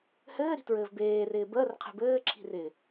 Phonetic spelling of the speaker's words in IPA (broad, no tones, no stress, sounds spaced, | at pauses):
h ɘː ɾ i̤ t ɹ ɘː v b eː r ɪː b əː r qʰ e̤ b ɘː ǁʰ i̤ r ɪː